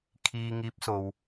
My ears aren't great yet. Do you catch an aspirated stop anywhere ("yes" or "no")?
yes